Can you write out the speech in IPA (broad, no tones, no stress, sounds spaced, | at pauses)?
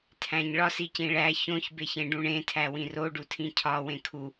tʰ æ̃ ɲ ɭ ɒ s i c ĩ ɭ æ ç õ ç b e ç ẽ ɖ ũ ɳ ẽ tʰ æ w ĩ r o ɖ u tʰ ĩ cʰ ɒ w ẽ kʰ u